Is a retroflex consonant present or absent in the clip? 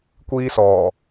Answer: absent